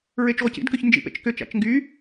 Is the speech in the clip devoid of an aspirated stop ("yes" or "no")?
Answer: yes